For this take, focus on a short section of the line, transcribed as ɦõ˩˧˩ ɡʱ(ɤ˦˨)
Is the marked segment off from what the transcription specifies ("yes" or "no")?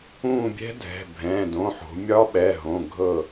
no